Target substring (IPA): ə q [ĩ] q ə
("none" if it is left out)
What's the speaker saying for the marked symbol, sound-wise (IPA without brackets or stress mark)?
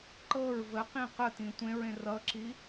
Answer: ĩ